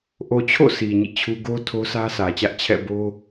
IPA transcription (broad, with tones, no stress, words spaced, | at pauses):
ʔo˨t͡ɕʰo̰˦˨ sʰi˨ɲḭ˦˨t͡ɕʰu˦ ɡo˦ tʰo˦sʰä˦sʰä˨t͡ɕä˦ʔ t͡ɕʰɛ̰˦˨bo˦